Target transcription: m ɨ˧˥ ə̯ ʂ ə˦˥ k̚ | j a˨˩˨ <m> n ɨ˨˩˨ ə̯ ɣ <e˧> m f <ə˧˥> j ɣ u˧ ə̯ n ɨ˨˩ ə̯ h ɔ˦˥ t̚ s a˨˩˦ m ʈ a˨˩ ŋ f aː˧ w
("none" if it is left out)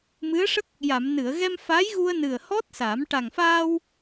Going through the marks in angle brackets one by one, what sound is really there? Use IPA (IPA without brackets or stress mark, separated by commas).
m, ɛ˧, a˧˥